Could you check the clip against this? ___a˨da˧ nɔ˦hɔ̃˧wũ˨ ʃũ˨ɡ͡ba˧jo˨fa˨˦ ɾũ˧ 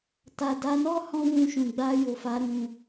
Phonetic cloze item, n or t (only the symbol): t